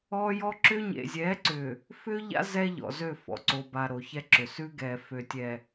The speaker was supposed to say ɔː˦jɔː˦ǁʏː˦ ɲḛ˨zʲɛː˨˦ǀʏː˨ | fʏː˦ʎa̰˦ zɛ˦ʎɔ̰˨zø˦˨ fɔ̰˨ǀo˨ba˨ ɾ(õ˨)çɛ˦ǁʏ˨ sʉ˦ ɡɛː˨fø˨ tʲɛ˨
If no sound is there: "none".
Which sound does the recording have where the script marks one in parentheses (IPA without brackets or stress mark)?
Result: o˨